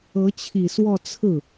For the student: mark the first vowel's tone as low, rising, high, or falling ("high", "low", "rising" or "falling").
rising